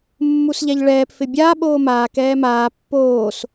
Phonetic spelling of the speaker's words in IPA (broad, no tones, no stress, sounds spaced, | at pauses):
mː u s ʎ ɛ ʎ ɭ ɛː p f ɪ bʲ a ɓ oː m aː k ɛː m aː pː oː s